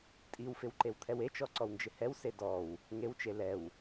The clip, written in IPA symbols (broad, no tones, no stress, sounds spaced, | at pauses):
tʼ i w f ɪ w ǃ e w t̪ʰ ɛ w e t͡ʃ ɔ ǀ ɔ w n d͡ʒ ɪ h ɛ w s e d ɔ w | ŋ e w t͡ʃ e l ɛ w